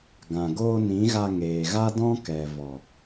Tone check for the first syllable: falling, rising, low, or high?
low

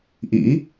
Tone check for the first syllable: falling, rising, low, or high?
rising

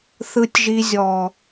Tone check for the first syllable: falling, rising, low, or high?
low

